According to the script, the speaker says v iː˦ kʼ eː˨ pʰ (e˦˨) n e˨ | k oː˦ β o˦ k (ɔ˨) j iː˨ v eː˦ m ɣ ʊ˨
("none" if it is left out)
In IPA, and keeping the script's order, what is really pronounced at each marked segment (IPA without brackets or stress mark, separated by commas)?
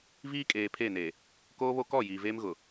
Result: e˦˨, ɔ˦˨